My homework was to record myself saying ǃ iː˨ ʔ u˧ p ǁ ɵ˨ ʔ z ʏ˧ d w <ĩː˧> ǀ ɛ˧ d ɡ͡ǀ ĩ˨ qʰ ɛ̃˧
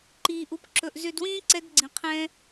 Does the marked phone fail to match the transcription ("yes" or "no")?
yes